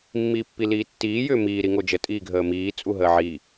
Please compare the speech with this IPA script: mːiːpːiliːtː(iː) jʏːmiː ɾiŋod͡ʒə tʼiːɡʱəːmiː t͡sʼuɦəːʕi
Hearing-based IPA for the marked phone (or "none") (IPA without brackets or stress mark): iː